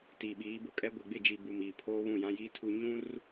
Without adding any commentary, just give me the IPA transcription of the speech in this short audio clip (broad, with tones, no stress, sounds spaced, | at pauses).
t i˨ ɓ iː˨˦ b ʊ˨ kʼ ɛ˦ ɡʷ e˨ ɡ͡b ɪ˦˨ d͡ʒ i˨ b u˨ m iː˨ pʰ oː˦ β ũ˦˨ j ã˦ j iː˦ tʰ u˦ ɲ ũ˦ r